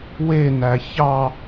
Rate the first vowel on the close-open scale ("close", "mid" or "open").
mid